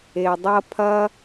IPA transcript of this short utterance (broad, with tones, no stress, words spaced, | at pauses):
e˩dˤɐ˦pʰɐ˥